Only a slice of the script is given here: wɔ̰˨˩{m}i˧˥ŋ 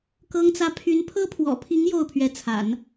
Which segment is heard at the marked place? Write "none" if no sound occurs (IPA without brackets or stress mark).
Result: pʰ